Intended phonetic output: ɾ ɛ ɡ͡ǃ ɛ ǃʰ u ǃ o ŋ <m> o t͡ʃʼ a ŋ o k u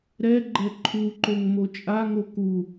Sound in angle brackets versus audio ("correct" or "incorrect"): correct